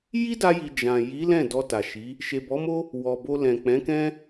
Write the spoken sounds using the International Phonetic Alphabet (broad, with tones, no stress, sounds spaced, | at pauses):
j i˦ d a˧ j i˨ d͡ʒ ã˨ j i˨˦ l ɛ̃˦˨ d ɔ˧ t a˨ ʃ i˨˦ | ʃ e˨ b ɔ˨˦ m o˦ | w ɔ˨ b o˧ l ɛ̃˨ k͡p ɛ̃˨˦ k ɛ̃˦